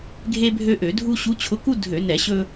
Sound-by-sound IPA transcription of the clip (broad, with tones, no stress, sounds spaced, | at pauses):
ɡʱ e˦ bʱ ø˦ ʔ ø˧˩˧ dʱ u˦ ɕ u˨˦ t͡ɕʰ ʊ˨˦ k u˦ dʱ ø˧˩˧ n ɛ˧˩˧ ɕ ɵ˦